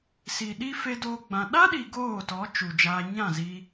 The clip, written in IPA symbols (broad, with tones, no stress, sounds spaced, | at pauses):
s i˨ ɗ i˦ f e˦ d oː˦ ɡ͡b ã˧ ɗ a˦ ɗ i˨ ɡ oː˦˨ t ɔ˨˦ t͡ʃ u˨ d͡ʒ aː˧ ɲ ã˦˨ z i˧